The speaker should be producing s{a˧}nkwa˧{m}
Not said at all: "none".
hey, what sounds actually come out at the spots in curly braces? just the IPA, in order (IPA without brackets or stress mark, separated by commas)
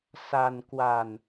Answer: a˧, n